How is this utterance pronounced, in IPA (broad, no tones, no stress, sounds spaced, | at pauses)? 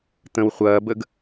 t̪ ə̃ w χʷ ɐː b ə ɡ